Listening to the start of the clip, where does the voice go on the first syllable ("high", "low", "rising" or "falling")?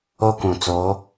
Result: high